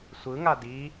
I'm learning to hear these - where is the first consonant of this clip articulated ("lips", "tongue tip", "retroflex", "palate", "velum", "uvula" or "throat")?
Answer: tongue tip